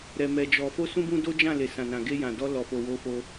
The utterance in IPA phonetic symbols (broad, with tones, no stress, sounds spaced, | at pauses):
ɾ ɛ˧ m ɛ˧ d͡ʒ ɔ˧ f o˧ s ũ˧ b ũ˧ d o˦ d͡ʒ ã˦˨ l e˨ s ã˨ n ã˨ ɡ e˧ j ã˨ d ɔ˧ l ɔ˨ f o˨ w o˨˦ f o˧